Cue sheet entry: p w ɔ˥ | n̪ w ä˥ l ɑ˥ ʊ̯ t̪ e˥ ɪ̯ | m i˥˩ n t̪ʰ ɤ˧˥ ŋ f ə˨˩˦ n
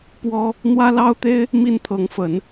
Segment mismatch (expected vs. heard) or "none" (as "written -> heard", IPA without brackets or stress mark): none